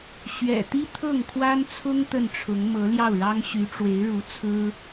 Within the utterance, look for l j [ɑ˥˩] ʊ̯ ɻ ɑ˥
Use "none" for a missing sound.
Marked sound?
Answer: ɑ˥˩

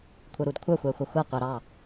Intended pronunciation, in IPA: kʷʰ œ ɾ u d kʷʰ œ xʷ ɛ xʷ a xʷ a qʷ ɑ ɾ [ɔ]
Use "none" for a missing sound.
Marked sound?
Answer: ɑ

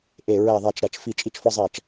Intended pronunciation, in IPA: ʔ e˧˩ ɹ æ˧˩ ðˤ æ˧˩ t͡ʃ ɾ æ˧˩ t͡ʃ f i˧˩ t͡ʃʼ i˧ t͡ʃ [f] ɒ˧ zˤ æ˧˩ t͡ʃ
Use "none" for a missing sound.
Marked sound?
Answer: f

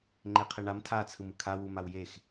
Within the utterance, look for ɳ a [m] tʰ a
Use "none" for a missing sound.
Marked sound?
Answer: m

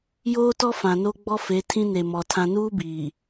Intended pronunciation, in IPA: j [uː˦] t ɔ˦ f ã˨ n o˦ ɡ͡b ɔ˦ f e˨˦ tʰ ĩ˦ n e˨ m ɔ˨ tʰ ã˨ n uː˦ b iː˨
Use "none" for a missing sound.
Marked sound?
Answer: oː˦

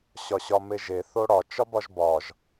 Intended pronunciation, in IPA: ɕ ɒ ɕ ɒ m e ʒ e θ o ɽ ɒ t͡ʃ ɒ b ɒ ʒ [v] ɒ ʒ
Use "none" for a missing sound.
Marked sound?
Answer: b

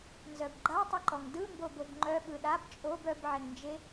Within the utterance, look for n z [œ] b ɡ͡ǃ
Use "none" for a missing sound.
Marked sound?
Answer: œ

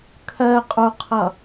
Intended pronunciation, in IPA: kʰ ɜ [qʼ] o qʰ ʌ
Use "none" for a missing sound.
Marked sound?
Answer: qʼ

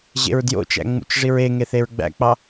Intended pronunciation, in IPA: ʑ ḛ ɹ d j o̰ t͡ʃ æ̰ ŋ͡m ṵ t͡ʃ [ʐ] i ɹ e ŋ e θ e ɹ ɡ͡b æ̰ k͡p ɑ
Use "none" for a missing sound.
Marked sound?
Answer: ʐ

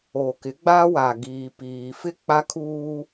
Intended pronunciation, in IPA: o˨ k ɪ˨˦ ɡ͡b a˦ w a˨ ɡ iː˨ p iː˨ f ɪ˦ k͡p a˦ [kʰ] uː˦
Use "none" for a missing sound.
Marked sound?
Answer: kʰ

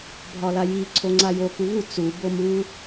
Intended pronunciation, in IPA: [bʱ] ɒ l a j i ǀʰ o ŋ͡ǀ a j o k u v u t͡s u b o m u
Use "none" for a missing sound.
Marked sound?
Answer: bʱ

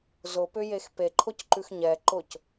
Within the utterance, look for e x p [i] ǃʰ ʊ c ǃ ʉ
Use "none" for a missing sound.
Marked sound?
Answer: e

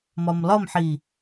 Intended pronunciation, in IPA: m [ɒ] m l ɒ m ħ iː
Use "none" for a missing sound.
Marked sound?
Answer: ɒ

